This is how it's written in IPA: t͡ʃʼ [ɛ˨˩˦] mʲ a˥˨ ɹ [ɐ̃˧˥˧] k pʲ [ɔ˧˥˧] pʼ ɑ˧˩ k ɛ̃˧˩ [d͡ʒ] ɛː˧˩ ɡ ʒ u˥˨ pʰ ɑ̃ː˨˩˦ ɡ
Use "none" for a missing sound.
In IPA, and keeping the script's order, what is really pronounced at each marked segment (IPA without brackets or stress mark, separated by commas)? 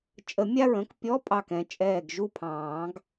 ə˨˩˦, ə̃˧˥˧, ɔ˧˥˧, t͡ʃʼ